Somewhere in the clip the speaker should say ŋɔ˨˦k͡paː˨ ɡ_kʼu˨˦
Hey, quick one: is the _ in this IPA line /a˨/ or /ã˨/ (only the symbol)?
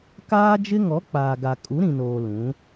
a˨